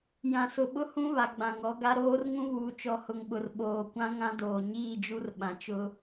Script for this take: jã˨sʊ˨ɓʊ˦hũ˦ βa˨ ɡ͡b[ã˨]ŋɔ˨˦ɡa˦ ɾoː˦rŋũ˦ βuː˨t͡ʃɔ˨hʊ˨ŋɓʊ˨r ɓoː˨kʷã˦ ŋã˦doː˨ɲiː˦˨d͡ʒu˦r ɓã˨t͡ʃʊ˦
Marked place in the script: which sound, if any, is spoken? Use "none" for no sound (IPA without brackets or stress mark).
ã˨